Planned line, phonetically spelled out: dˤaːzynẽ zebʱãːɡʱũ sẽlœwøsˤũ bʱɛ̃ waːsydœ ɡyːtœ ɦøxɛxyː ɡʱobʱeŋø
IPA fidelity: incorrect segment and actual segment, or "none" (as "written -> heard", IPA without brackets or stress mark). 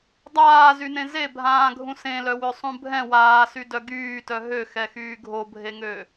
none